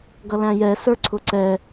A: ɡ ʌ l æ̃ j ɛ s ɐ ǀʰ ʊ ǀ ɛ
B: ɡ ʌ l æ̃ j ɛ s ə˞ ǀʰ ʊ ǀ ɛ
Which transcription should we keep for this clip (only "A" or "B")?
B